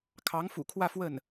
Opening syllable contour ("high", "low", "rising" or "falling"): rising